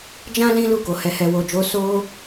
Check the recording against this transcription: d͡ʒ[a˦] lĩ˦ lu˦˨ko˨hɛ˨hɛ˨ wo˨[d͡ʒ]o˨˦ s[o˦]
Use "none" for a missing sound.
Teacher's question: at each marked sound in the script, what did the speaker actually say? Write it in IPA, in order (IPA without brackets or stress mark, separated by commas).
ã˦, d͡ʒ, o˦